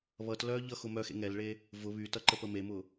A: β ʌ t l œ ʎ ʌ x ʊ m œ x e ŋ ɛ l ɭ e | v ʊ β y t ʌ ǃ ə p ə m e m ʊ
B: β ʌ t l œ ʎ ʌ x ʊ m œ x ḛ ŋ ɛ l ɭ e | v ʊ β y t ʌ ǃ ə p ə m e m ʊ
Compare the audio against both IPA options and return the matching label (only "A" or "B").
B